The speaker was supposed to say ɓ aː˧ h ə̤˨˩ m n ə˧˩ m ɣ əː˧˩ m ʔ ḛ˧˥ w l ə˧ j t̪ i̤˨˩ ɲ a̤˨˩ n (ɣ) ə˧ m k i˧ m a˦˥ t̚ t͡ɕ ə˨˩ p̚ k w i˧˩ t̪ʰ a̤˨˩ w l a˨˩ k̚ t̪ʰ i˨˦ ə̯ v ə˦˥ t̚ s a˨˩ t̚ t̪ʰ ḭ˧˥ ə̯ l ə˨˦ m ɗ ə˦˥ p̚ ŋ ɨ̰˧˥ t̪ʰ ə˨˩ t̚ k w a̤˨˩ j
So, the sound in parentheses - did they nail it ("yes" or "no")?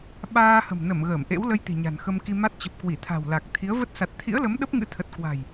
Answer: no